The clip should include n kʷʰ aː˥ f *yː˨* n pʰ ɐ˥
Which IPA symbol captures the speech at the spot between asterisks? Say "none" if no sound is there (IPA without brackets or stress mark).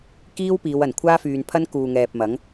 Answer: yː˨